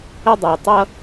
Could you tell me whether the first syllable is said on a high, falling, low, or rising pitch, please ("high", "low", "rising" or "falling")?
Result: high